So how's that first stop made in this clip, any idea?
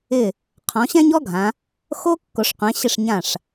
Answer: aspirated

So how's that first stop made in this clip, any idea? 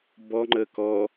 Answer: plain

